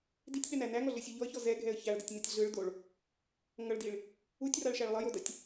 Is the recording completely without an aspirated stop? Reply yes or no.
yes